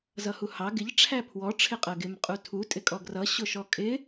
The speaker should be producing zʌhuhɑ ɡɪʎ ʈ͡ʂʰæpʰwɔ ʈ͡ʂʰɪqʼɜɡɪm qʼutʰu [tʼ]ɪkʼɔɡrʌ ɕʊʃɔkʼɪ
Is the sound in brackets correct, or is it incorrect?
correct